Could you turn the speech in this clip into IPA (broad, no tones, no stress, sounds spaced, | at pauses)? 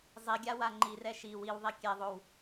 zˤ i ɡʲ a w a ŋ͡ǃ i r ɛ ʃ i w i w ðˤ i kʲ e ðˤ o w